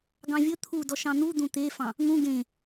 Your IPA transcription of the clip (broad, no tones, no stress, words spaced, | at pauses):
ɡɑ̃vʲɵ t̪ʰudɔ ʃɑ̃n̪ud̪ũ t̪efɑ̃ | ŋũ ɡẽ